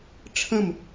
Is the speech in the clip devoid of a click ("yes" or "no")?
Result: yes